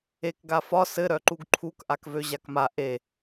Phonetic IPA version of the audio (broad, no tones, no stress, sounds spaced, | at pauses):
e k ɡ a f ɒ s ɘ ɾ œ ǃ u ɡ ǃʰ u k ʔ a k v ø ʑ a k m a ʔ e